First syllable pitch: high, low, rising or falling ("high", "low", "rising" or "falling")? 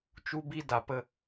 high